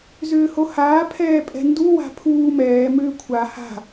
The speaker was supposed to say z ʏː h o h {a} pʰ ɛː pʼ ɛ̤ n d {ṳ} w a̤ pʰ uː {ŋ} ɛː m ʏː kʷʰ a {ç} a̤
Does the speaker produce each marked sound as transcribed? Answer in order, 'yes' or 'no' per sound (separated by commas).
no, no, no, no